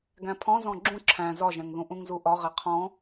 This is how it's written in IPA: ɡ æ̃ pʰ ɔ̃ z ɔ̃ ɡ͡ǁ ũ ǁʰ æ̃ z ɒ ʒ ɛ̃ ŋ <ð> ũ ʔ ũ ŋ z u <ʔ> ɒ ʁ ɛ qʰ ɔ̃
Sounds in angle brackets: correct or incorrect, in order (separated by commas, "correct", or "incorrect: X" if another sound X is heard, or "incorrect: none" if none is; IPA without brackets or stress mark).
correct, correct